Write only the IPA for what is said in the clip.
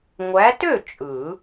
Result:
ŋʷ æ˨˦ t ø˥˩ t͡ʃʼ ɯ˨˩˦

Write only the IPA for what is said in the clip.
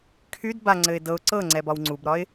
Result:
kʰ y d b a ŋ͡ǀ ɘ ɪ̯ d ɤ ʊ̯ ǀ ɤ ŋ͡ǀ ɛ b ɒ w ŋ͡ǀ u b ɾ ɒ ɪ̯

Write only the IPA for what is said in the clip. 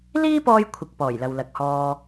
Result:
l iː˥ p ɔː˧ j kʷʰ ɪ˨ k̚ p ɔː˨˩ j l ɐ˨ w l ɐ˨ k̚ h ɔː˧

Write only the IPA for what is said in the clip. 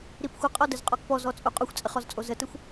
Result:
ɾ i p xʷ ə qʼ ɔ d ə z qʼ ɔ k p ɔ z ɔ t͡sʼ u qʼ u xʷ t͡sʼ ə χ ɔ z t͡sʼ o z ə t ə xʷ

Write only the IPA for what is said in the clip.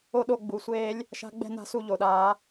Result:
o˥˧ ɗ o˥˧ ɡ͡b u˨˦ sʷ eː˦˥ lʲ | ʃ a̤˦˥ ɡ͡b ɛ̤˥˧ n a̤˥˧ s u˥˧ ʎ o˧˩˧ ɗ aː˨˦

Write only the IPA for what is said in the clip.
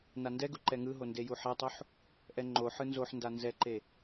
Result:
n a n d ɛ ɡ u ǃ ɛ ŋ ɯ ɦ o n d e j u ħ ɛ tˤ u ħ | ʔ ɛ ŋ͡ǃ o ħ ɯ n z o ħ n d a n z ɛ ǃ e

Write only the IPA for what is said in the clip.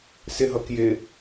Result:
s ɪ ɦ ʌ k j ɪ

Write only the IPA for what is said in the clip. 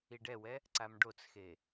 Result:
i ɖ ɛ w ɛ | ǀ a m ɖ o t͡s x e

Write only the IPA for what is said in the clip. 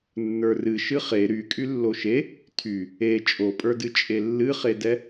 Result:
nː ə˞ r ɨ ʃ ɨ χ e ɾ y kʼ y lː o ʃ e | tʰ y | e t͡ʃʼ o pʼ ə˞ d ɨ t͡ʃʼ e lː ɨ χ e d ɛ

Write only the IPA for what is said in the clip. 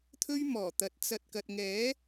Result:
t̪ʰ ɵ˥ ɥ m ɔː˨˩ t̪ ɐ˨ t̚ t͡s ɐ˧ t̚ k ɐ˨ t̚ ŋ ɛː˨˥

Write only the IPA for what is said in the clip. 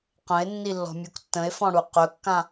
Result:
q ə̃ e̯ nː i lː ɔ̤ mʲ u k tː ə̃ e̯ f ɔ̃ ɽ u q ɵ kː ã

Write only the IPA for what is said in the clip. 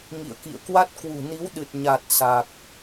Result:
ŋ ḭ˧˨ ə̯ k ḭ˧˨ ə̯ k w a˦˥ t̚ k w ṳ˨˩ n i˨˦ w ɗ ɨ˨˩ t̚ ɲ a˨˩ t̚ s a˨˩ k̚

